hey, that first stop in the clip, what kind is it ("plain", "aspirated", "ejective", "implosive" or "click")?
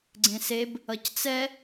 click